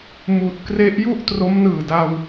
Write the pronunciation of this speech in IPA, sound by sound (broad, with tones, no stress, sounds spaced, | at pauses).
m uː˨˩ t̚ k r e˦˥ ʔ j u˥˩ ʔ t r o˦˥ m n ɯː˨˩ d a˧ w